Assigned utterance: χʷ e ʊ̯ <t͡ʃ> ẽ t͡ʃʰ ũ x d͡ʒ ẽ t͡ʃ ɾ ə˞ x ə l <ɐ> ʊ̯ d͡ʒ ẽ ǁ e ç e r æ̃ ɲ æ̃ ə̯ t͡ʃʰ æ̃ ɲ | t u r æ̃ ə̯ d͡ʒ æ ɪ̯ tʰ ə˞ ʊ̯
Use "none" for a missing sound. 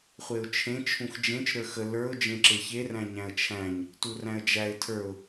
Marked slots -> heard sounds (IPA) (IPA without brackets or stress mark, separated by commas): t͡ʃʰ, ə˞